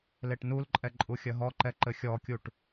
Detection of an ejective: present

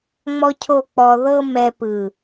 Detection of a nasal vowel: absent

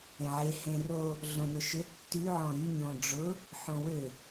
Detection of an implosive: absent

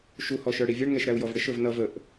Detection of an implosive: absent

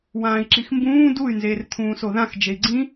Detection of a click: present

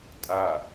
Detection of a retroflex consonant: absent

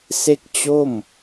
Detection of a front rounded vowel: absent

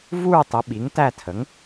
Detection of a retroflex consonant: absent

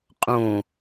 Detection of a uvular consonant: present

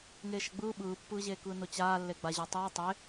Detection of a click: absent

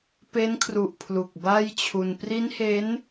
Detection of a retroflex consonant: absent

